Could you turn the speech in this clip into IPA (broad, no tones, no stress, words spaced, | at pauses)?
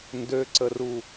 ndøǀəru